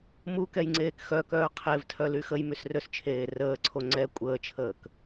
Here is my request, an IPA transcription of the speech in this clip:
mukɛjŋ͡ǀeːk xœkœː qʰevtʰœly xəjmysrøst͡ʃʰeː rəːǀʰo ŋ͡ǀɛ kʷʼəːt͡ʃʰəːk

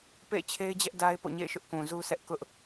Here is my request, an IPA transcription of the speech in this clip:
pḛ˦˨ɪ̯t͡ɕʰe˦ɪ̯d͡ʑɛ˦ʔ da˦ɪ̯ po̰˦˨ɲḛ˦˨ɪ̯ʃʊ˦ʔ kũ˨zu˦sɛ˦ʔ kʊ˦ʔ

